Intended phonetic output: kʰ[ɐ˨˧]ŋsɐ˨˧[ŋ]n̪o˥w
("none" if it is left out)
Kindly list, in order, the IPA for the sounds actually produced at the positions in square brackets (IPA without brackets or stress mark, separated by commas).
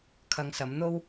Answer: ɐ˨˧, m